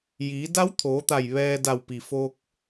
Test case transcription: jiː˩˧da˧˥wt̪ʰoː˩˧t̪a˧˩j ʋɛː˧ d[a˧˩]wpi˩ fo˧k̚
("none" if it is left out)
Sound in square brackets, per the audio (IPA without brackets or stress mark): a˧˩